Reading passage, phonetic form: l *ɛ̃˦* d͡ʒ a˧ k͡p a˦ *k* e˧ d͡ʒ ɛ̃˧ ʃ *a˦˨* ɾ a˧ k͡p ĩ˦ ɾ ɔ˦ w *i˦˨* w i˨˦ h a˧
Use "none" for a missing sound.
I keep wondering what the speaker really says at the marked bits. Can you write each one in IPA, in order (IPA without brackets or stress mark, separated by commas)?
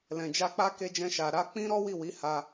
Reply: ɛ̃˨, k, a˨, i˦˨